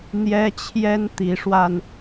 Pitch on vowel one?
high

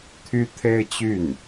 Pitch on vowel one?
high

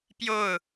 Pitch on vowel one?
falling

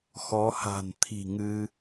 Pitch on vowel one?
rising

